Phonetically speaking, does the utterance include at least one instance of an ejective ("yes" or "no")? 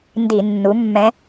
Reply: no